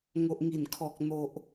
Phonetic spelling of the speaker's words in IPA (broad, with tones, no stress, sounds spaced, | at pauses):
ŋ o˨ ʔ ŋ i˨˩ n kʰ ɔ˨ k̚ n̪ o˨ ʔ